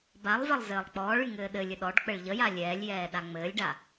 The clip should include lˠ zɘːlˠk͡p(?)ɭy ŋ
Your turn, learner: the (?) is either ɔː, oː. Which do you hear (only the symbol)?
ɔː